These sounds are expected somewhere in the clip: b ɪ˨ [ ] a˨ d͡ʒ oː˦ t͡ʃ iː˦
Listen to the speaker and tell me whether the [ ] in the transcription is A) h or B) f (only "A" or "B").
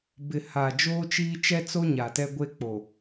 A